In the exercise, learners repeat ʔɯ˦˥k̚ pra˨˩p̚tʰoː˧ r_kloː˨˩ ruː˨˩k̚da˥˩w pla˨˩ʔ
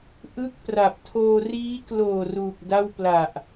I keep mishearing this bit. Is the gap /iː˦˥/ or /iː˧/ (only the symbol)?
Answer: iː˦˥